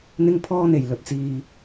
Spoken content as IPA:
n̪ ɪ˥ ŋ pʰ ɔː˥ n̪ e˨ j l ɵ˧ t̚ t͡s iː˧

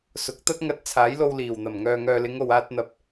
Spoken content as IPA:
s ʊ˨˥ k̚ t̪ ɐ˥ t̚ ŋ ɐ˧ t̚ t͡sʰ aː˨˥ j l o˧ w l iː˨˩ w n̪ ɐ˨˩ m ŋ œː˨ ŋ œː˨ l ɪ˨˧ ŋ o˨ w aː˧ t̚ n̪ ɐ˨˥ p̚

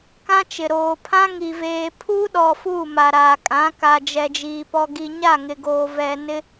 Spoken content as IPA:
k ã˦ t͡ʃ ɪ˨ ɾ oː˨ pʰ ã˦ ŋ i˨ v eː˨ pʰ uː˦ ɗ ɔ˨ f uː˦˨ m a˨ ɾ aː˨ kʼ ã˨˦ k a˨ d͡ʒ ɛ˨ d͡ʒ iː˨ p ɔ˨ ɡ i˨ ɲ a˦˨ ŋ ɪ˨ ɡ oː˨ v ɛ˨ n ɪ˦

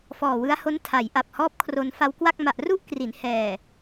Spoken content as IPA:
f ɔː˨˩ w ɯ˦˥ a̯ h o˦˥ n tʰ a˩˦ j ʔ a˨˩ p̚ h ɔː˦˥ p̚ kʰ r o˧ n f a˧ w k w a˥˩ k̚ m a˨˩ ʔ r u˥˩ ʔ k r i˩˦ n h ɛː˨˩

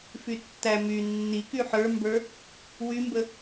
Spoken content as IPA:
f y tː æ m y nː i k y ħ ə˞ m b ə˞ | w y m b ə

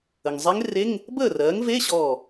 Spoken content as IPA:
ə˩ ŋ zˤ e˧˥ ŋ r e˧˥˧ ŋ | b əː˥˩ r ɜː˩˥ ŋ v e˧˥˧ ɕ ɔː˧˩

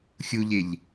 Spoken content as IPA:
xʲ u ʎ e ʎ

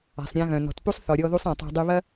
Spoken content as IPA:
a̤˩ sˤ ɾʲ ã˧ ɣ œ̃˩ n ɔ̤˩ t p u˥ sˤ θ ɔ˩ ɾʲ ɔ˧ ð u˧ sˤ ã˩ tˤ o̤˧ dˤ y˧ β ɐ˥

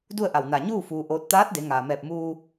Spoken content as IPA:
d u˥˨ ə̯ ʔ a˧˩ w n a˧˩ ɲ uː˥˨ f uː˧ ʔ oː˧˥ t̚ t̪ aː˧˥ t̚ d e˩˧ ŋ aː˩ m ɛː˧˩ p̚ m uː˧

